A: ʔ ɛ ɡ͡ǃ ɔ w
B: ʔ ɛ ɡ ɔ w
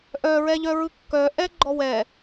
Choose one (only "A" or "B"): A